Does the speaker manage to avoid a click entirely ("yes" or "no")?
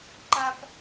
no